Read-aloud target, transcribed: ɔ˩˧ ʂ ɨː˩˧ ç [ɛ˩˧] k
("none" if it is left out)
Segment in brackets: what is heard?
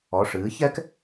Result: ɛ˥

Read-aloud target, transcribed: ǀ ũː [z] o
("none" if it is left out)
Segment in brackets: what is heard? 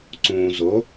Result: z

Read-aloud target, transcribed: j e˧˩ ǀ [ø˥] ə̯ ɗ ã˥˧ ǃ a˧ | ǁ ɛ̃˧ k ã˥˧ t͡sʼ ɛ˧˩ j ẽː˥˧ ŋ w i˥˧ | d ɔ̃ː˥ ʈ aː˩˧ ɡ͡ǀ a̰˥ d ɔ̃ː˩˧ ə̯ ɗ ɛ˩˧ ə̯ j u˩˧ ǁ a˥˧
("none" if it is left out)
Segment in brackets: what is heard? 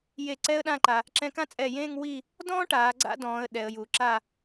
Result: ɛ˥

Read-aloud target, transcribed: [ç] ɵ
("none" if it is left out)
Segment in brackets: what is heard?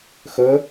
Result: x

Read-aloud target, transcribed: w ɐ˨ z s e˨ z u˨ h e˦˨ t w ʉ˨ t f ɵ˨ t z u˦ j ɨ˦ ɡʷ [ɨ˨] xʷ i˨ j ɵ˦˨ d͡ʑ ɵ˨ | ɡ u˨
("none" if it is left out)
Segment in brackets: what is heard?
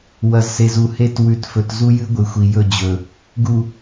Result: ɨ˨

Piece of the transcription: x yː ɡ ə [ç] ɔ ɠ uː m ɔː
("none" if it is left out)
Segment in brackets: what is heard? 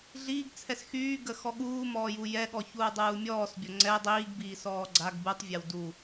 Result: x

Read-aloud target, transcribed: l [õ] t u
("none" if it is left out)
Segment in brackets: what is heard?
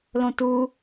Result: õ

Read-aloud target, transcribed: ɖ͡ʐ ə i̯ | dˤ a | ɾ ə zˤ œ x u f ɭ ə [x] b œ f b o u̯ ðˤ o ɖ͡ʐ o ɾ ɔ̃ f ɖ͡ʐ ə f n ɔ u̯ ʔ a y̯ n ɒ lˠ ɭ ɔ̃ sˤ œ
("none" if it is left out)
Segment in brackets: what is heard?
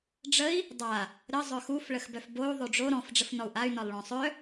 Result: x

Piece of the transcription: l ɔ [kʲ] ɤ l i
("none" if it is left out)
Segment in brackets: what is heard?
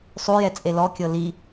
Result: kʲ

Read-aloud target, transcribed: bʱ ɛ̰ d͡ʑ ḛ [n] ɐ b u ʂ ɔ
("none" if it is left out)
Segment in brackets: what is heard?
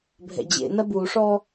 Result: n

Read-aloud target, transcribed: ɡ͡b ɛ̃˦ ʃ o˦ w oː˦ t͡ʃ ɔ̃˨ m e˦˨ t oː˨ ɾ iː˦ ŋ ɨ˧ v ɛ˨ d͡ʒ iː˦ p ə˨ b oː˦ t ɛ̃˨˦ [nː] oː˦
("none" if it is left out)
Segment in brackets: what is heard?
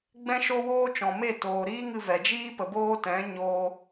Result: ɲ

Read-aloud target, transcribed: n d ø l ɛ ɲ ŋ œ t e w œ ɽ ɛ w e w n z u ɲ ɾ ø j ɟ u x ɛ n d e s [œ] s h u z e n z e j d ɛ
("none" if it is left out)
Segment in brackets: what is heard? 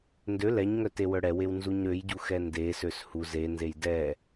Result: ø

